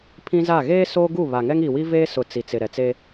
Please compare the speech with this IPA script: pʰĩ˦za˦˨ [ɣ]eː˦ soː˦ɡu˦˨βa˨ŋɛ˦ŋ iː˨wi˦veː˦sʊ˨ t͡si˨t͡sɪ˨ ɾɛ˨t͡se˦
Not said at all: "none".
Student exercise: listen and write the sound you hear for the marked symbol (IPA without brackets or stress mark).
ɣ